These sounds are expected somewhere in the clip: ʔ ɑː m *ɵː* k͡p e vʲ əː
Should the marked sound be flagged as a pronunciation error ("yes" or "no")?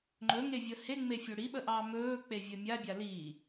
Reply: no